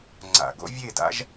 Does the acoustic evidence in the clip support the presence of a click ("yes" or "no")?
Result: yes